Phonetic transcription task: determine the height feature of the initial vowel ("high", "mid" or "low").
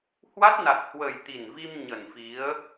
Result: low